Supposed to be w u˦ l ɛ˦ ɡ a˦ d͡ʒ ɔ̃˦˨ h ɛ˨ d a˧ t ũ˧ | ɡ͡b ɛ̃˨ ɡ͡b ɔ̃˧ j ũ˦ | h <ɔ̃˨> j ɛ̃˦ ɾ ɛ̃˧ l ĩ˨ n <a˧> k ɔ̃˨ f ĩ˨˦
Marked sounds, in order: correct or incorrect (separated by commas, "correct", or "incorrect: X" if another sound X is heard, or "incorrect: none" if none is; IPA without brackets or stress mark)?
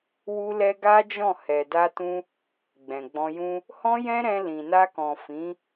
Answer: incorrect: ɔ̃˦, correct